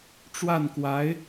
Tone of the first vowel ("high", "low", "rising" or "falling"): falling